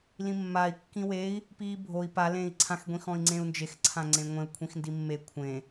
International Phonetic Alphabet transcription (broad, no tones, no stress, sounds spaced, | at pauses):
l ĩ mː a i̯ kː ĩ w e i̯ | p iː bʱ o i̯ p a l ẽː i̯ ǀʰ ã x ɡʷ ĩ x ɔ̃ i̯ ŋ͡ǀ ẽ u̯ n d͡ʒ e x ǀʰ ã ŋ͡ǀ ẽ ŋʷ ẽ u̯ kʷʰ ĩ x n d i mː e kʷʰ ẽ